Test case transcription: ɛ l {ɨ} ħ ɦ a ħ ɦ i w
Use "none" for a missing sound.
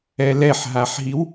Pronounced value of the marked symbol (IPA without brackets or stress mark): ɛ